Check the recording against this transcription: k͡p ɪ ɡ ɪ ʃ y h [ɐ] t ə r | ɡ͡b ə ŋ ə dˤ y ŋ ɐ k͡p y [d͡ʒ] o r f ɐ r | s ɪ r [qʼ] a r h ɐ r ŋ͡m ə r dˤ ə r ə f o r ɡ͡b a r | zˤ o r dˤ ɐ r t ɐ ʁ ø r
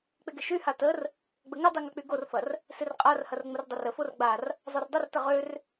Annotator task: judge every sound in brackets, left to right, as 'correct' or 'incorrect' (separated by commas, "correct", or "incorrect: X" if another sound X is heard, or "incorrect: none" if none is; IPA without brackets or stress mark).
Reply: incorrect: a, incorrect: ɡ, correct